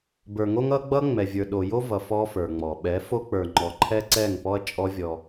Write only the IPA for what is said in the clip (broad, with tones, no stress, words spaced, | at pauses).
bə˞˨ŋo˦ŋʌ˦ɡ͡bʌ˦ ŋ͡mɛ˨vʲə˞˨ ɗo˨ jo˦vʌ˨ fɔ˦fə˞˨ŋ͡mɔ˨ ɓɛ˨˦fo˦k͡pə˞˨ŋ͡ǃɔ˨ ǃʰɛ˦ǀɛ˦˨ŋ pɔ˦ɐ̯t͡ʃʼɔ˦ vʲɔ˦